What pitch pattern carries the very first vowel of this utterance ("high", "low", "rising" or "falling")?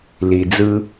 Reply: low